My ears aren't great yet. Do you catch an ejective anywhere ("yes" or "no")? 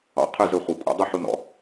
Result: yes